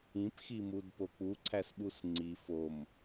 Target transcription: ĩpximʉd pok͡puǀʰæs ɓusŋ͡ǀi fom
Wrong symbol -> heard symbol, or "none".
ʉ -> u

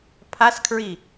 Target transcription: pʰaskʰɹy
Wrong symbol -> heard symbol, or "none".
y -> i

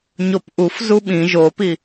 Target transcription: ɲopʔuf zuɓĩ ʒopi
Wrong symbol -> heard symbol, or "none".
none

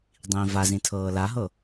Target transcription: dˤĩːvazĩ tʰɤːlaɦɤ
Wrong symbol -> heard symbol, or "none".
none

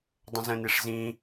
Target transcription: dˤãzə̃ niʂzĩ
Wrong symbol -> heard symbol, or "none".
ã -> ə̃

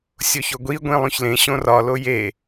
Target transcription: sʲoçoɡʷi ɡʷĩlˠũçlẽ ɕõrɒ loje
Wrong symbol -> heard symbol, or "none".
none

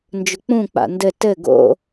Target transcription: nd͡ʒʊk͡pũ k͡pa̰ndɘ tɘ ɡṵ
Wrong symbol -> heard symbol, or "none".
ṵ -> o̰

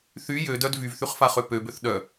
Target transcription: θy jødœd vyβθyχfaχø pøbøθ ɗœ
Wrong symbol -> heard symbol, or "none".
β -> v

